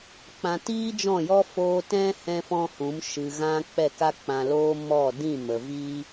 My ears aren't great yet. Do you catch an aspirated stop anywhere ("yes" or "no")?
no